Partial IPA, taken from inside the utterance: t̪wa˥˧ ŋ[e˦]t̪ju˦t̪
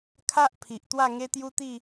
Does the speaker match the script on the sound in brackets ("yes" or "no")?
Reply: yes